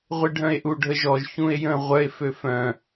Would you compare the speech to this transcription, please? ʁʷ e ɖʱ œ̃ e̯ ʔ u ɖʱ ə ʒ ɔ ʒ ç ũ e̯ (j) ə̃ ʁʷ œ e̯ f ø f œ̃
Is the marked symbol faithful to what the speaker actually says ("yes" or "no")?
yes